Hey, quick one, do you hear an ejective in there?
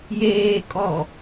yes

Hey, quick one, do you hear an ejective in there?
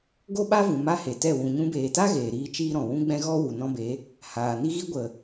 no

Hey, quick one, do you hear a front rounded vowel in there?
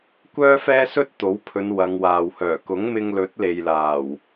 yes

